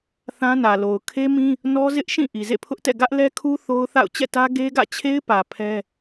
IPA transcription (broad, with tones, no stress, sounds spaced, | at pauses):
θ ã˦ n ä˨ l o˨ ʊ̯ kʰ e˦ m ĩ˦ | n ɔ˦ z ɪ˦ ʔ ʃ ĩ˦˨ ʔ i˨ z ḛ˦˨ pʰ ʊ˦ ʔ t ɛ̰˦˨ ɡ ä˦ ʔ l ɛ˦ kʰ u˦ θ o˦ ʊ̯ θ a̰˦˨ ʊ̯ t͡ɕ ɛ̰˦˨ t ä˦ ɡ e˦ ɡ ä̰˦˨ t͡ɕʰ e˦ ɪ̯ p ä˨ pʰ ɛ˦